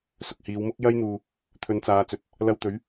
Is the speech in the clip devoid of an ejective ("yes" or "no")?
yes